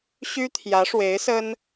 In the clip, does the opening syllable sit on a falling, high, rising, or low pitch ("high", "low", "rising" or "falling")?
high